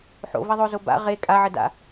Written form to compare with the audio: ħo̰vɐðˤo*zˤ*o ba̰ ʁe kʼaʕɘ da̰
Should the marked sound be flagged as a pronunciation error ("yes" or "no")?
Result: yes